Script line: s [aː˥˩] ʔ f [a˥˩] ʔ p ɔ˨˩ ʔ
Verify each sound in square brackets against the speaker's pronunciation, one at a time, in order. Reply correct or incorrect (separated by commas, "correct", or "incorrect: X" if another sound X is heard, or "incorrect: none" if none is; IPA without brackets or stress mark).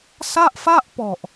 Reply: incorrect: a˥˩, correct